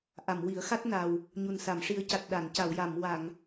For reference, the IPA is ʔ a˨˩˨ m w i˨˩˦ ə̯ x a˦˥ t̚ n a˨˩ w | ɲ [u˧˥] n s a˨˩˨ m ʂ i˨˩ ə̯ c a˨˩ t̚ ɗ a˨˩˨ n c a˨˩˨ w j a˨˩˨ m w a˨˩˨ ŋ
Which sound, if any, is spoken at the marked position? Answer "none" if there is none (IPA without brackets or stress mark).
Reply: u˨˩